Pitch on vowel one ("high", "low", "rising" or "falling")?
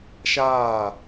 falling